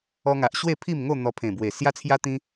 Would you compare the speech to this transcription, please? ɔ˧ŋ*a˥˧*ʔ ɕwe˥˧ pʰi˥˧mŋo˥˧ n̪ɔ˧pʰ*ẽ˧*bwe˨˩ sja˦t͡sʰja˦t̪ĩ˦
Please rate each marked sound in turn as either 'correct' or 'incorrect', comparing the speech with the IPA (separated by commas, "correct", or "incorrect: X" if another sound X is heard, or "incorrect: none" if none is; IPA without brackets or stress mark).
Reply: incorrect: a˨, incorrect: ẽ˨˩